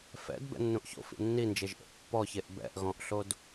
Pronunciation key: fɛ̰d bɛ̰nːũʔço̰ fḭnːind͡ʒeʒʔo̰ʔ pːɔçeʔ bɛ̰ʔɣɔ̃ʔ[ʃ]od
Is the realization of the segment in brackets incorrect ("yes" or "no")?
yes